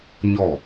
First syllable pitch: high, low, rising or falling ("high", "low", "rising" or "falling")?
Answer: falling